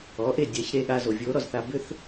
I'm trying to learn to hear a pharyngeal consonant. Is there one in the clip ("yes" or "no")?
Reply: no